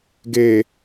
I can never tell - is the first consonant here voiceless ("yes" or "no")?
no